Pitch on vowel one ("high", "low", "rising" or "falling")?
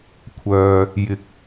high